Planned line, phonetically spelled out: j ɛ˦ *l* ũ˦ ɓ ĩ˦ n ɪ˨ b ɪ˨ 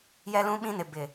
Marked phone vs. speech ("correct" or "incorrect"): correct